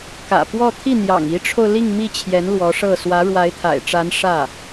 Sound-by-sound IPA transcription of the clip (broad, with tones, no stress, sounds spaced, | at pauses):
k ä̰˨˩ p w ɔ˥˧ t̪ʰ i˥˩ n̪ j ɑ̰˨˩ ŋ i˧˥ ʈ͡ʂʰ o˧ ʊ̯ l i˥˧ ŋ m i˥˩ t͡ɕʰ j ɛ˧˥ n l w ɔ˧˥ ʂ ɤ˥˩ s w ä˧˥ ɻ w a˧˥ ɪ̯ t̪ʰ a̰˨˩ ɪ̯ ʈ͡ʂ a˧˥ n ʂ ä˥˩